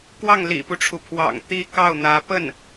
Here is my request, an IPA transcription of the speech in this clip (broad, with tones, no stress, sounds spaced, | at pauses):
k w ɑ˥˩ ŋ l ḭ˨˩ p u˦ ʈ͡ʂʰ u˩ pʰ w ɑ̰˨˩ ŋ t̪ i˥ k ɑ˥˩ ʊ̯ n̪ ä˧˥ p ə˥˩ n